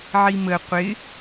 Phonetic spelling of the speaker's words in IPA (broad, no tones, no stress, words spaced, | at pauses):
ʕimə qʷɪ